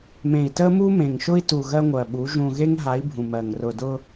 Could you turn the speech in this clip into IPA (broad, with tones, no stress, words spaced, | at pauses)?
mẽ˨i̯tə˦ mu˦mẽ˨ŋʃʊ˦i̯tu˨ ɣɜ˦ŋʷɜ˨ɓu˨˦ ʒũ˨ɣe˦ŋɦa˨˦i̯ bʱũ˨mɜ˨ŋ rʊ˨dʊ˦